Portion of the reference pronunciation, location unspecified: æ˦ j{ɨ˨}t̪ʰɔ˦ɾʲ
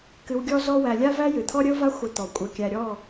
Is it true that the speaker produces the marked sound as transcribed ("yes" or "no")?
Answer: yes